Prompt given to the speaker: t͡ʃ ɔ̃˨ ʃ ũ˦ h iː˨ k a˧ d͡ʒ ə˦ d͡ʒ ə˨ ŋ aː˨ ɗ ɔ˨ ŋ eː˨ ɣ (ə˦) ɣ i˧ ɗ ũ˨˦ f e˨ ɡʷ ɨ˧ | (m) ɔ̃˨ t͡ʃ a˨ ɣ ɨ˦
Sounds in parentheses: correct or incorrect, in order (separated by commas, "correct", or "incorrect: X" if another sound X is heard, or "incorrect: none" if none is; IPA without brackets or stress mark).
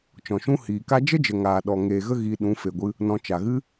correct, incorrect: n